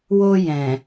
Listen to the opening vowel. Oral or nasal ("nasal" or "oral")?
oral